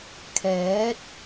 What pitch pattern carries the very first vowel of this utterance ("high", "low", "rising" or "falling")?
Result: rising